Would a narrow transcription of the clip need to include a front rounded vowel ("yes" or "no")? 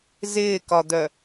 yes